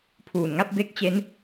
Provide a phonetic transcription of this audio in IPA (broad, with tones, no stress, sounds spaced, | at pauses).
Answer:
pʰ uː˨˩ n ŋ a˥˩ p̚ b e˦˥ k̚ t͡ɕ e˦˥ n